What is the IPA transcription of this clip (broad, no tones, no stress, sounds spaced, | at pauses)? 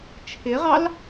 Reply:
t͡ʃʰ ɪ ʁ ɑ l